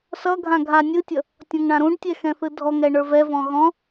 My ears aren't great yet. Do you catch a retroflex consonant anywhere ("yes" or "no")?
yes